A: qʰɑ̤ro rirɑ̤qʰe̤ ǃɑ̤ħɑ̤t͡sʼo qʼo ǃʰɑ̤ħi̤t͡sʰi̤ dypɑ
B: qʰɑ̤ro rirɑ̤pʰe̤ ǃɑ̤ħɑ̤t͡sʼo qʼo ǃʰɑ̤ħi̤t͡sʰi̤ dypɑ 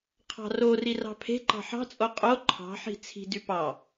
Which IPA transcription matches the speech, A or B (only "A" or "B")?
B